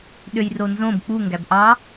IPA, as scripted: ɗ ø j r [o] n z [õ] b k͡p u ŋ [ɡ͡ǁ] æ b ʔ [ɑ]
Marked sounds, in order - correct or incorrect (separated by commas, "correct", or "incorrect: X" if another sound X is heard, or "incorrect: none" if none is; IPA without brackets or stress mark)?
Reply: correct, correct, incorrect: ɡ, correct